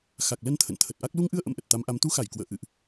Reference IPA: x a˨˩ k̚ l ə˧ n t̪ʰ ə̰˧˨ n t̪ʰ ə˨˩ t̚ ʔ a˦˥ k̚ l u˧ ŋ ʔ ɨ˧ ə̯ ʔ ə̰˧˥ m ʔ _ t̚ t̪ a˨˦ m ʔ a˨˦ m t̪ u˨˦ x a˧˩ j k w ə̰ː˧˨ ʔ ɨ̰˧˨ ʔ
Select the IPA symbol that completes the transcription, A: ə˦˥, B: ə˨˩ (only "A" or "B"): B